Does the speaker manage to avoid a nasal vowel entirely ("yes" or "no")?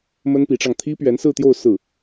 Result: yes